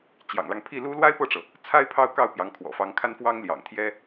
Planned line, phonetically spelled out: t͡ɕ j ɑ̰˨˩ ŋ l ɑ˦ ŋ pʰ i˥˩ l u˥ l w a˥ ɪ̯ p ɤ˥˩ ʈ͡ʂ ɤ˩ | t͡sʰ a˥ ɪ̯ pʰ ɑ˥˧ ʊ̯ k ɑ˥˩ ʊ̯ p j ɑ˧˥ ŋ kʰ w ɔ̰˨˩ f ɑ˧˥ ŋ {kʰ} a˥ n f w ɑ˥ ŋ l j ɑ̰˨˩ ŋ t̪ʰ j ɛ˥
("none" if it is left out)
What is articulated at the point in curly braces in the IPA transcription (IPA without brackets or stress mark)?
kʰ